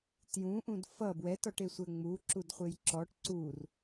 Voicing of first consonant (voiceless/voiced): voiceless